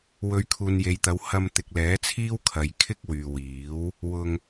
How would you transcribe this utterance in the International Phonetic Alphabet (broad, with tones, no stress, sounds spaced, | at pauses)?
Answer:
w ɵ˨˧ ɥ kʰ uː˨ n j e˨ j t̪ ɐ˨˧ w h ɐ˧ m t̪ ɪ˨ k̚ l ɛː˨˥ t͡sʰ iː˥ w kʰ ɐ˨ j kʰ ɪ˥ k̚ w yː˨ w iː˨˥ w | w ʊ˧ ŋ